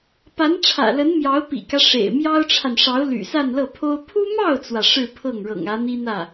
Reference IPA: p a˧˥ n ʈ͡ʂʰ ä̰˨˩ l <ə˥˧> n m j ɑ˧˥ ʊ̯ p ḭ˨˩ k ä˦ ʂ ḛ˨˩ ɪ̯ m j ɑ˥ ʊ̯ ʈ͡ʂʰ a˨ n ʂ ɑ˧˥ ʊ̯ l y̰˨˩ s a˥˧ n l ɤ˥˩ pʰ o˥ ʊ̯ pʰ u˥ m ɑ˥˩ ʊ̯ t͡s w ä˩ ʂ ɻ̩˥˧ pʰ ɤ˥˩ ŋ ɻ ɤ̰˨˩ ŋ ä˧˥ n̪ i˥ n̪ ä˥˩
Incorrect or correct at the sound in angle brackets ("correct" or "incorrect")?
incorrect